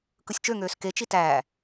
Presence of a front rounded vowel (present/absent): present